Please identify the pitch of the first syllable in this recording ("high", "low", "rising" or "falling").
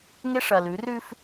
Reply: high